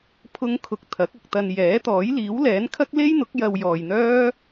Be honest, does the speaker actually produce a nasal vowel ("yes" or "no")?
no